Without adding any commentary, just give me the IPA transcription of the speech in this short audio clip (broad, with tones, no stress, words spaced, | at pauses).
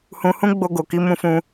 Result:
hũ˧hũ˦ ɡ͡bo˧ɡo˨ki˧ mũ˦fũ˦